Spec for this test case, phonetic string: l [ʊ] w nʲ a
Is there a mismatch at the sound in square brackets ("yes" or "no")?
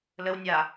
yes